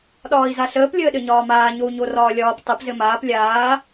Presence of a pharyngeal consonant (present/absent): absent